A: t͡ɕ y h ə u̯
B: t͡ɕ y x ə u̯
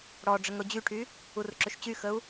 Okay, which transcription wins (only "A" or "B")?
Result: B